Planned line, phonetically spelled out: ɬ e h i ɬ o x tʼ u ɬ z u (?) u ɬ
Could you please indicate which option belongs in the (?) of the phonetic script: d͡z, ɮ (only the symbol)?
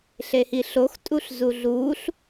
ɮ